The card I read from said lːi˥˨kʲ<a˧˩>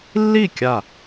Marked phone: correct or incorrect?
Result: correct